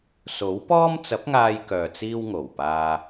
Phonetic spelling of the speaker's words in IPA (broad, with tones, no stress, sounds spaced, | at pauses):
s o˨˥ w p ɔː˥ m t͡s ɐ˨˥ p̚ ŋ aː˧ j k œː˨ t͡s iː˧ w ŋ o˨˩ w p aː˧